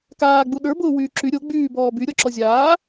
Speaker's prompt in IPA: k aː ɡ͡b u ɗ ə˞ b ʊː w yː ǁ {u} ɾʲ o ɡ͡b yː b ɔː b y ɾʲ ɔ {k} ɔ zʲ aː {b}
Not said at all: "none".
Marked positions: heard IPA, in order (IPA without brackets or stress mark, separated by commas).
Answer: y, ǁ, none